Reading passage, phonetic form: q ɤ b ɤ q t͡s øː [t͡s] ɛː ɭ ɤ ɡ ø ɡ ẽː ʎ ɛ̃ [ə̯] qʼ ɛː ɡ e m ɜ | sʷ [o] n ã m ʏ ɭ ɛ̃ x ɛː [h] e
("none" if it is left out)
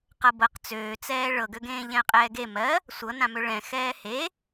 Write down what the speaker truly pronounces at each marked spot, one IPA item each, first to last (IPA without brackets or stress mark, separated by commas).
t͡s, ə̯, ɤ, h